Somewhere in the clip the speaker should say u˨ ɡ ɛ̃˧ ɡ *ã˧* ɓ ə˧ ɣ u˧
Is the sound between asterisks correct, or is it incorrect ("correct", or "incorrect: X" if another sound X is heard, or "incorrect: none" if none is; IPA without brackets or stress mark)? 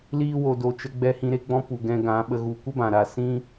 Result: incorrect: ã˨˦